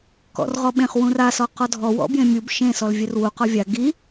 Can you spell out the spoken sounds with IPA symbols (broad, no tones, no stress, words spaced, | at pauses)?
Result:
kɔ̰rʁɔɓẽχ wũrasɔqɔ dʱɔwɔ̰bjẽ mʲub ʃẽ sɔlvʲɛrwu qɔvʲa ɡi